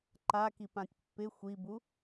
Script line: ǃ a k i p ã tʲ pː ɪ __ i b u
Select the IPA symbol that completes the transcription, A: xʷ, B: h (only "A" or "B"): A